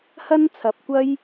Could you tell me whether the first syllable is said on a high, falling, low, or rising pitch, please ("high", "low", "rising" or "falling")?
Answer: high